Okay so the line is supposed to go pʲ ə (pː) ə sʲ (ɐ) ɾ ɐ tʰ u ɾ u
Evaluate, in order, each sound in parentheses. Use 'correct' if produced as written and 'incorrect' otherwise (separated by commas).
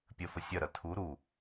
incorrect, correct